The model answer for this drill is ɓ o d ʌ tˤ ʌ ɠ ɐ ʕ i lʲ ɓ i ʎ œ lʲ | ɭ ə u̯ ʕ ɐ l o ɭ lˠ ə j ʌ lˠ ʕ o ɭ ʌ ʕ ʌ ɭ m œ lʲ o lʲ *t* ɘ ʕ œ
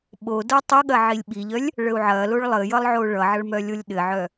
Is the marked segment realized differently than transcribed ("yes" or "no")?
yes